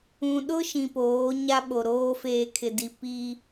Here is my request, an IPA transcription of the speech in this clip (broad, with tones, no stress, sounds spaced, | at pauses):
ũ˨ ɗ ʊ˦ ʃ ĩ˨ p oː˨˦ ɲ a˦ ɓ o˨ ɾ oː˦ f eː˨ kʰ ɪ˨ d i˨ p i˦